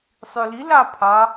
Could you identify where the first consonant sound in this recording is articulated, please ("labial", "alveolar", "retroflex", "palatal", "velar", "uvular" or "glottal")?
alveolar